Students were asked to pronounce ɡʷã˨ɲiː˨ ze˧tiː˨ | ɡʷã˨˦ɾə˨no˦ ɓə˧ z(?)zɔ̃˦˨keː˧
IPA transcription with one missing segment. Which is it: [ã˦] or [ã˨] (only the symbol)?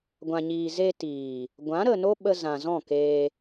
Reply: ã˨